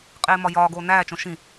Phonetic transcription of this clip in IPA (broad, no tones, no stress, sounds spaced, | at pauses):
qʼ eː m ɒ j ɒː ɡ oː n æː t͡ʃ õ ʃ ĩ